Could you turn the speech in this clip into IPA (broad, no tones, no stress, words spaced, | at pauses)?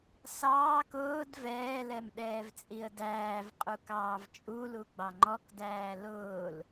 sɑːk ʊːd vɛːlɛm ɗɛːvt͡sʼiə̯dæːvqʼu kɑːvt͡ʃʼulu ɡ͡bɑŋ͡ǃɔkdæː lʊːl